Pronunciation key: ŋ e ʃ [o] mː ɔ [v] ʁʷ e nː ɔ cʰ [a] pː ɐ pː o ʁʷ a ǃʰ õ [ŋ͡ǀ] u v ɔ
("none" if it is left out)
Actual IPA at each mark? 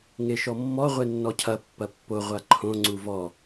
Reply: ɔ, none, ɐ, ŋ͡ǀ

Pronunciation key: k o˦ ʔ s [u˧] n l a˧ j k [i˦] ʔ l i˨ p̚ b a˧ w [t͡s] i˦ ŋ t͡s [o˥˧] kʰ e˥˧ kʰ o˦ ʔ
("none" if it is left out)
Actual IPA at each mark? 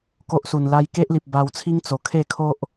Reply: u˨˩, e˦, t͡sʰ, o˨˩

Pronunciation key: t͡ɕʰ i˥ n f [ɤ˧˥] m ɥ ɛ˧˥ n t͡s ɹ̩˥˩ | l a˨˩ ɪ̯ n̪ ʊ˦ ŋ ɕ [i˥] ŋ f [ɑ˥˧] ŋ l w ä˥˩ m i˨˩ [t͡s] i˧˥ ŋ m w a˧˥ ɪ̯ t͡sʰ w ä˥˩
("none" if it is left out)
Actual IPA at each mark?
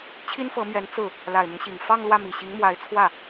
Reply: ɤ˧˥, i˨˩, ɑ˥˧, ɕ

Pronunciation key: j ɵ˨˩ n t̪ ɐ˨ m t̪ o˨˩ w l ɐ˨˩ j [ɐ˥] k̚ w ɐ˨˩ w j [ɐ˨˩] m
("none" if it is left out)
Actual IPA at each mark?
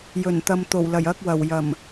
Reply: ɐ˧, ɐ˨˩

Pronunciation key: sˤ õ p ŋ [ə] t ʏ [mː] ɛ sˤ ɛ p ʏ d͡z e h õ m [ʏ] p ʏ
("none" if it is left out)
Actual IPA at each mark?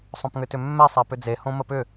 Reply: ʏ, mː, ə

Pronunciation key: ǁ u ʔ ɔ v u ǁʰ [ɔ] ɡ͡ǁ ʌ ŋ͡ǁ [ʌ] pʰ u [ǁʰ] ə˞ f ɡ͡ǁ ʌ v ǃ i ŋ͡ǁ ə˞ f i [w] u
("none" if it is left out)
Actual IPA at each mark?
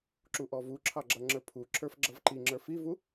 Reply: ɑ, ə˞, ǁʰ, v

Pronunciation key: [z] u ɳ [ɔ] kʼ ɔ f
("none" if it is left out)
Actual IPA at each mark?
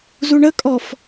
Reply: z, ə

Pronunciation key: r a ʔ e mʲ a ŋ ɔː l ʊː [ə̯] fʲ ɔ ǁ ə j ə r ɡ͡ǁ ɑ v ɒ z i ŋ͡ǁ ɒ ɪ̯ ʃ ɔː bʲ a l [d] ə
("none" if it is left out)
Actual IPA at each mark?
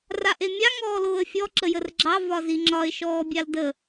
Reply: ə̯, d

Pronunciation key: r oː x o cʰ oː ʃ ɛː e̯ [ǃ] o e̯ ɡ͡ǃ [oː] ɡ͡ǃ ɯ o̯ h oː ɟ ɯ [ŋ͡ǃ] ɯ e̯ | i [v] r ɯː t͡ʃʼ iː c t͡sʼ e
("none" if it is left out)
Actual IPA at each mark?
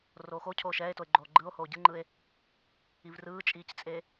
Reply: t, oː, ŋ͡ǃ, v

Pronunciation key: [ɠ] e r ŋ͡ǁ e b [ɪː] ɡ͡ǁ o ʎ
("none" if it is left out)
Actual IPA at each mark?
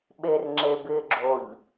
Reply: ɓ, ɪː

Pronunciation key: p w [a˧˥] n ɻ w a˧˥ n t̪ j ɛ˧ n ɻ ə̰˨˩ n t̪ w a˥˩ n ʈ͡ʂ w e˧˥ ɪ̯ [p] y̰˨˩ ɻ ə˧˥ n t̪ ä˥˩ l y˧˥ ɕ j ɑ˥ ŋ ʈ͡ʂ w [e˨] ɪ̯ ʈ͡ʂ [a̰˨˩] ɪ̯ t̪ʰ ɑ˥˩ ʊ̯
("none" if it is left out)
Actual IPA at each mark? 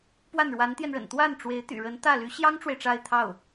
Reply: a˥˩, t̪, e˨, a˥˧

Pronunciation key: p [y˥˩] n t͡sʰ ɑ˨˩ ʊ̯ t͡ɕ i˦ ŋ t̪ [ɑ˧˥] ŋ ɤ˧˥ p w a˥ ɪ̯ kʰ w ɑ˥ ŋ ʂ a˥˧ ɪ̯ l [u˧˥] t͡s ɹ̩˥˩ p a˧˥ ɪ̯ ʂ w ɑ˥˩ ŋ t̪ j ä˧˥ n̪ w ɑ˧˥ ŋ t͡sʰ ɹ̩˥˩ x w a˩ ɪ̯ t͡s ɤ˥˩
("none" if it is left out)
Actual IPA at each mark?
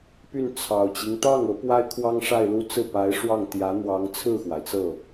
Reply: y˥˩, ɑ˥˩, u˥˧

